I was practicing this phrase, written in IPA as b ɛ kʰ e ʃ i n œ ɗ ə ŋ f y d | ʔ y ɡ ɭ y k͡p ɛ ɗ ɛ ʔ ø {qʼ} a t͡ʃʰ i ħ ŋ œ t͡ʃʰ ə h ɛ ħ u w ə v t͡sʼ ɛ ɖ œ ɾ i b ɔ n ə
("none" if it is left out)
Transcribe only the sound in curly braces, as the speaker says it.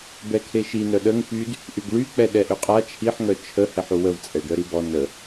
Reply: qʼ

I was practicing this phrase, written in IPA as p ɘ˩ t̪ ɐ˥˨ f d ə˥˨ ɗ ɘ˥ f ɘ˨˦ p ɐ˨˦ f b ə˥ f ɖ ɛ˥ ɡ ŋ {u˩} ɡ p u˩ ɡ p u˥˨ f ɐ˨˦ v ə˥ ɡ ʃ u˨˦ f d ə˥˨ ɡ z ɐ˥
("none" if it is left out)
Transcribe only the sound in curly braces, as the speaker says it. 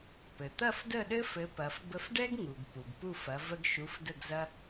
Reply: u˩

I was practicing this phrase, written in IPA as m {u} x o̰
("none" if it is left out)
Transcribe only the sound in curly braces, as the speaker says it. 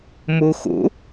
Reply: o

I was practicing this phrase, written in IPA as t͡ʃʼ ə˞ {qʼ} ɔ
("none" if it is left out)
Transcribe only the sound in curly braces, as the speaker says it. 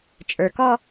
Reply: k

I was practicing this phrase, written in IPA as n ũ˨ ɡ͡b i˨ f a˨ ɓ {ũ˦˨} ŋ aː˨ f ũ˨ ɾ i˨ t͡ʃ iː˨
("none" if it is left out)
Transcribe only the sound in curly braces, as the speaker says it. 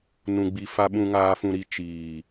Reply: ũ˨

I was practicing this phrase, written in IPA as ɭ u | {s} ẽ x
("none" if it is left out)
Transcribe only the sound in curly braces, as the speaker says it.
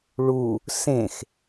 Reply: s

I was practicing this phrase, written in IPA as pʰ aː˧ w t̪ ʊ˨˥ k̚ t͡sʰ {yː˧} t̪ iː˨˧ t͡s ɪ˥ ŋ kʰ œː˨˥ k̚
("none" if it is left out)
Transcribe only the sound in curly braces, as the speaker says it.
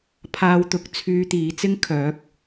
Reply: yː˧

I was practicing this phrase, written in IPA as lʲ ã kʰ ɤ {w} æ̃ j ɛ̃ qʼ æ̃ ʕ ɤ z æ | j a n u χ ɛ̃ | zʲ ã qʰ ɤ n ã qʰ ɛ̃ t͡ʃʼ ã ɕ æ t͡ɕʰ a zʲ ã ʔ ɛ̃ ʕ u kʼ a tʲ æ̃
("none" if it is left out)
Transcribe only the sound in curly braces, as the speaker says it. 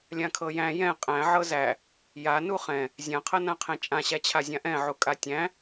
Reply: j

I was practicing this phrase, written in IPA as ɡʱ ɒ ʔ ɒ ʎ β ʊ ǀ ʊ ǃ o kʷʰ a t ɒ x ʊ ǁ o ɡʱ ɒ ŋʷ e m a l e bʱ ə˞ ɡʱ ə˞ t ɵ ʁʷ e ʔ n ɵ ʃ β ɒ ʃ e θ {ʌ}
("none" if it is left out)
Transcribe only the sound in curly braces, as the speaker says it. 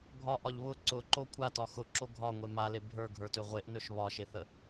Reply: ə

